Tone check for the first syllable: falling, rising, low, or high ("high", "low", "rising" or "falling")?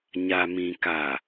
low